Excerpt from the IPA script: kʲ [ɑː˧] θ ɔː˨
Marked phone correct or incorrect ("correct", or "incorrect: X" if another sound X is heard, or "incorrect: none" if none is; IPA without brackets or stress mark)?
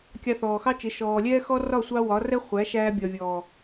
incorrect: ɑ˧